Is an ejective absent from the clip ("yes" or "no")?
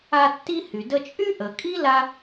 no